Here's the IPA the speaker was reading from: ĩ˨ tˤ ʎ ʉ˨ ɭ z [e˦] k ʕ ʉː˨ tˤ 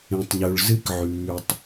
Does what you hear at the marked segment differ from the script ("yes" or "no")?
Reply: yes